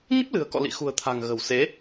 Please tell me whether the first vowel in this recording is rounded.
no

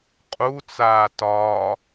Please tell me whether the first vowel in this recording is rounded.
yes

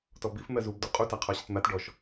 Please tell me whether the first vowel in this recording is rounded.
yes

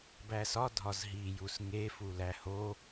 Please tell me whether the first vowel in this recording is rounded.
no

